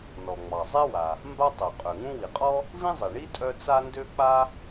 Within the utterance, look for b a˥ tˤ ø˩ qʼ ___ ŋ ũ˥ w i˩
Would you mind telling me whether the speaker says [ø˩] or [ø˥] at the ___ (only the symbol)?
ø˩